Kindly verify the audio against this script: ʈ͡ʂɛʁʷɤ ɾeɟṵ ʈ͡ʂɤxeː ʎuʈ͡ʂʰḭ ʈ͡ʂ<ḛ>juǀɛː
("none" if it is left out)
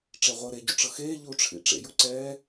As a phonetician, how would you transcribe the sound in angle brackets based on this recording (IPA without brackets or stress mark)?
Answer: ḛ